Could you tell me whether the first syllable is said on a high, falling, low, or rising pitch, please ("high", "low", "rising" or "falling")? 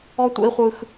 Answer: high